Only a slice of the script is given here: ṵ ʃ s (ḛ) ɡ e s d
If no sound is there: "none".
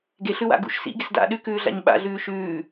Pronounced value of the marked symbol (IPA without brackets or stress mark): ḭ